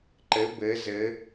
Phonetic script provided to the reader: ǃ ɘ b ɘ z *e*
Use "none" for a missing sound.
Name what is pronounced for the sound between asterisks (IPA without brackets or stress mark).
ɘ